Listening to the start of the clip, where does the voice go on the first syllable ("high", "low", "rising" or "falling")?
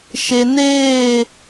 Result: low